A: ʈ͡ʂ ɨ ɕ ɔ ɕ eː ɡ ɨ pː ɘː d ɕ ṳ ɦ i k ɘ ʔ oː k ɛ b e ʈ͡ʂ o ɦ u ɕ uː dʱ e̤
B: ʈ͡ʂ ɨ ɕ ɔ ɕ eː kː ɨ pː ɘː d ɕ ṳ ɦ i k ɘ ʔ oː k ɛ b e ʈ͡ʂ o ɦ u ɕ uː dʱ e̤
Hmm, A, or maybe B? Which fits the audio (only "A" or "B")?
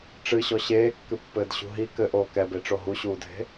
B